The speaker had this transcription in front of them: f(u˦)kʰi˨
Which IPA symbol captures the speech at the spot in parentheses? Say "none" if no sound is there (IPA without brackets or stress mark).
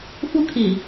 u˦